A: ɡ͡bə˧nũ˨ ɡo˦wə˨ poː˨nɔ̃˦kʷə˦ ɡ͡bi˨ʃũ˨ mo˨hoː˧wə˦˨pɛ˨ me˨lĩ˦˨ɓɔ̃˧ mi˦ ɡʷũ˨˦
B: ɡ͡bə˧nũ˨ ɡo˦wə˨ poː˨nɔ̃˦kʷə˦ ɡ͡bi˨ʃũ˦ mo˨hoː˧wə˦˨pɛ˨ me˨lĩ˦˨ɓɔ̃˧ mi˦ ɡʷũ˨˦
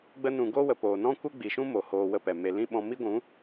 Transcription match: B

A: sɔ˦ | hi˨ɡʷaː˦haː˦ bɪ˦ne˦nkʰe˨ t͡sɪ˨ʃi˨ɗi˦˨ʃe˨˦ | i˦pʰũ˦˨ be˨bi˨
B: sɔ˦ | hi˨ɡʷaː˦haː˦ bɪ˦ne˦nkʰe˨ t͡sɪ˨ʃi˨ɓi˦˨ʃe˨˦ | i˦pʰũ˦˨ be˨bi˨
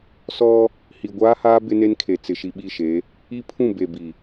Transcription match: B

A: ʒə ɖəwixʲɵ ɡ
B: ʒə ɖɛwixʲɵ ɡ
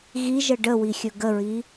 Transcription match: A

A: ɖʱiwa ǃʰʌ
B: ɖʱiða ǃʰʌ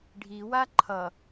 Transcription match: A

